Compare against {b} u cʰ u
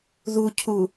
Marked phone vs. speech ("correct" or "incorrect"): incorrect